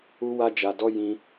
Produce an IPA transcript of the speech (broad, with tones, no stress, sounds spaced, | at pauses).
u˦ w a˦ d͡ʒ a˧ d ɔ˦ j ĩ˧